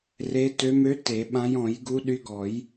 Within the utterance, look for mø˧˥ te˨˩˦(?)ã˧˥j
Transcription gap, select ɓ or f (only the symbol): ɓ